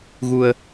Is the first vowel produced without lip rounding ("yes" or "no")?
no